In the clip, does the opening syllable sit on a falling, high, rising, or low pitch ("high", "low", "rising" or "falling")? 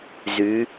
rising